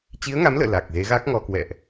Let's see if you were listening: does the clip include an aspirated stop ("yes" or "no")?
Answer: no